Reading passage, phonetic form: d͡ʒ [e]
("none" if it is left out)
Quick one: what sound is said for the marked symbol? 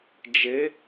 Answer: e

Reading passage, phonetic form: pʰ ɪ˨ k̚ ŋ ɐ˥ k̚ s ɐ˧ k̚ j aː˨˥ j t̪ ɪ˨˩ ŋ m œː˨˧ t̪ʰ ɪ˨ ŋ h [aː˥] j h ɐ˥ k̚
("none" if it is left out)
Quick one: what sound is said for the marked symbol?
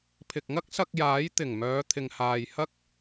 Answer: aː˨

